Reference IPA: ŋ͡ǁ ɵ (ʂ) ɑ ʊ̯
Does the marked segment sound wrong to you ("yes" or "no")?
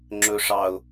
no